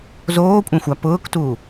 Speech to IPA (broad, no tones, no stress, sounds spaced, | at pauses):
z oː kʷʼ ã xʷ a p ʊː k t u